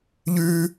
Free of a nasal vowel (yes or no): yes